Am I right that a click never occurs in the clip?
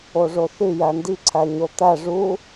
no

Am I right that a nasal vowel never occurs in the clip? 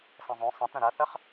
no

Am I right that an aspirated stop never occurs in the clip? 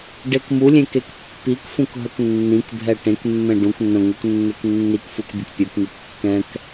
yes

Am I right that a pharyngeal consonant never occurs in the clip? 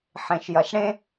no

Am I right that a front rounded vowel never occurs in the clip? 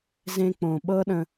yes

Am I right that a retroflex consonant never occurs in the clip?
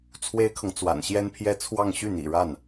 no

